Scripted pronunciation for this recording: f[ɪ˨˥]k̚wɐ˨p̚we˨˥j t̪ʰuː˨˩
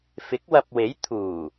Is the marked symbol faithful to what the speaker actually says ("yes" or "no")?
yes